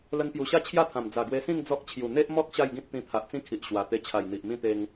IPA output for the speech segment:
l ə˧ n p j u˨˩ ɕ a˥˧ t͡ɕʰ j a˥˧ t̪ʰ ã˨˩ m d͡z a˨˩ ɡ w e˧ s ĩ˥˧ ŋ d͡z ɔ˦ k̚ t͡ɕʰ j u˨˩ n̪ e˦ ʔ m ɔ˦ k̚ ɕ a˥˧ j ɡ ĩ˦ t̚ t̪ ĩ˧ t̪ʰ a˨ ʔ t͡s ĩ˦ kʰ i˨ ʔ ɕ w a˨˩ t̪ e˧ t͡ɕʰ a˨˩ j n̪ i˨ ʔ m ĩ˥˧ t̪ e˧ ŋ

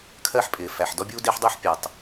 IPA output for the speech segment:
kʰ ɜ˥ ħ pʼ ɪː˨ f æ˨ ħ d ɔ˥ bʲ uː˥ d ɪː˥ ħ dˤ u˥ ħ pʲ æ˨ tˤ

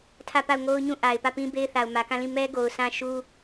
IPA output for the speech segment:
tʰ ä˦˨ p a˦˨ ʊ̯ ŋ o˦ ʊ̯ ɲ ũ˦˨ ʔ a˨ ɪ̯ p ä˦˨ p ĩ˦ b e˦ ɪ̯ θ a˨ ʊ̯ m ä˨ k ã˦˨ l ĩ˦˨ m ɛ˦ ɡ o˨ ʊ̯ s ã˦ ʃ u˦

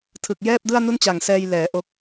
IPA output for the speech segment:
tʰ ɯ˨˩ k̚ j ɛː˥˩ p̚ d ɯ˥˩ a̯ n u˥˩ n t͡ɕ a˨˩ ŋ s ɛː˧ j l ɛː˩˦ ʔ o˦˥ k̚

